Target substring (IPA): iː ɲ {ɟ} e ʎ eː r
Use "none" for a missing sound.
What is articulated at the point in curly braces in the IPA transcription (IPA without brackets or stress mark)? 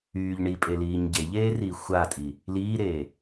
ɟ